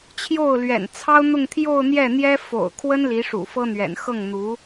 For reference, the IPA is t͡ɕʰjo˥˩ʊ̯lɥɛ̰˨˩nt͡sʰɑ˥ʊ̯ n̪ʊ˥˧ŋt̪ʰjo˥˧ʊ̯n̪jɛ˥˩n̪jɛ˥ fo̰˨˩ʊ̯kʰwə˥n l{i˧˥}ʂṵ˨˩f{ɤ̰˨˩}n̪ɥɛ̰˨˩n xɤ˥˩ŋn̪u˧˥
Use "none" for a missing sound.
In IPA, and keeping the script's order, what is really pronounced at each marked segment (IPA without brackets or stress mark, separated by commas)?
i˧˥, ɤ˥